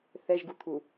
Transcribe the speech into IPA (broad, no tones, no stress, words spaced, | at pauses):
θɛʒ ɡut̪ʰu